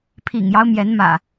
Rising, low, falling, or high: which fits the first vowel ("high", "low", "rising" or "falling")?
low